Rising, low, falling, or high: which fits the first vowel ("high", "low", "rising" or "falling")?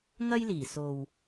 high